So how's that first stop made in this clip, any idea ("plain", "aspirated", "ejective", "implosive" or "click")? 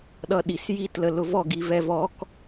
implosive